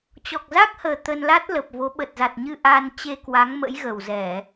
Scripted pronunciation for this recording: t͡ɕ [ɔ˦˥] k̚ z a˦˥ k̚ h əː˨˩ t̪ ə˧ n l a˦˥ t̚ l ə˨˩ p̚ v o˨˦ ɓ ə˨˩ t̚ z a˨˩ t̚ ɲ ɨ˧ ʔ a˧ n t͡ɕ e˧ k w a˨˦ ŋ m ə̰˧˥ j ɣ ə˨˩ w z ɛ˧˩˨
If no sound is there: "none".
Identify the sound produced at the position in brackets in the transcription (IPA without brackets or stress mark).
ɔ˨˩